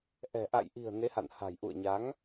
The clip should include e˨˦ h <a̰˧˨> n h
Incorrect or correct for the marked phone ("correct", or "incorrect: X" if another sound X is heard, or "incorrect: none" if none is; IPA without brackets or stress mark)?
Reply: correct